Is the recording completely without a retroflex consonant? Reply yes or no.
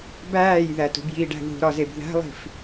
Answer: no